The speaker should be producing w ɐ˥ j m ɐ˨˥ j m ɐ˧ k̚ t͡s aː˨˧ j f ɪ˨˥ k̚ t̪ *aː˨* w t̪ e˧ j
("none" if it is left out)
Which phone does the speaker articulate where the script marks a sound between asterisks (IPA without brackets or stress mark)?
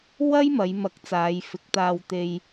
aː˧